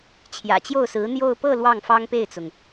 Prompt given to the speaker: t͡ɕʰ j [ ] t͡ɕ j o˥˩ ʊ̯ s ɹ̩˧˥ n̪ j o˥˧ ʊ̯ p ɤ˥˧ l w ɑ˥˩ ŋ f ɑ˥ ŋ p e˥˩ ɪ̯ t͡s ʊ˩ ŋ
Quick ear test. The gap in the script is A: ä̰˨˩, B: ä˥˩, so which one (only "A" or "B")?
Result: A